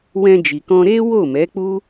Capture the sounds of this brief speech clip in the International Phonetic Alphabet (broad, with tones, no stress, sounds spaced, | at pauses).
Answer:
w ɛ̃˧ d͡ʒ i˨ k ɔ̃˧ ɾ e˦ w o˦˨ m ɛ˨˦ k͡p u˦